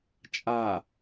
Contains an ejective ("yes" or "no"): yes